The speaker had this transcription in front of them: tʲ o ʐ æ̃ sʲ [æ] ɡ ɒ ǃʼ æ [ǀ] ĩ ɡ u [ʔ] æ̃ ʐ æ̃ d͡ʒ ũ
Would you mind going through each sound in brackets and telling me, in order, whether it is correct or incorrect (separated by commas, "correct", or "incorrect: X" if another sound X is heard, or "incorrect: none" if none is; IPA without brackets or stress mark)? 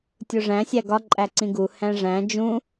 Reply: correct, correct, incorrect: h